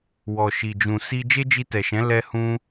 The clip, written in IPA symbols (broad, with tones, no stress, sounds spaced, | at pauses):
w ɔ˨ ʃ i˨ d͡ʒ ũ˨ s i˧ d͡ʒ e˦ d͡ʒ i˧ t ɛ˨ ʃ ɛ̃˨˦ l ɛ˦ h ũ˦